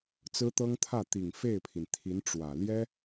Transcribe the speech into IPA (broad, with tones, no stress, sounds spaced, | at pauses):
t͡s ɹ̩˥ t̪ ɤ˥ ŋ t̪ʰ ä˥˩ t̪ i˨˩ ŋ f e˥˩ ɪ̯ pʰ i˩ n t̪ʰ i˧˥ n ʈ͡ʂ w ä˨˩ l j ɛ˥